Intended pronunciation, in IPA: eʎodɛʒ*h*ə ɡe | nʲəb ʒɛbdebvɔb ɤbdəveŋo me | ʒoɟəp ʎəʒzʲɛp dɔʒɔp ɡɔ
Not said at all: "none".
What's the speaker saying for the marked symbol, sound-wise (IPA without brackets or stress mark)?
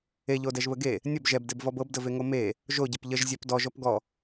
β